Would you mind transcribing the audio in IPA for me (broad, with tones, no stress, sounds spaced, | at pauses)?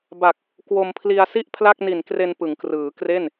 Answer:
b a˨˩ k̚ | k w o˧ m pʰ l i˧ a̯ s i˥˩ ʔ pʰ l a˥˩ k̚ n i˨˩ n k r e˧ n p ɯ˩˦ ŋ k r ɯː˩˦ k r e˥˩ n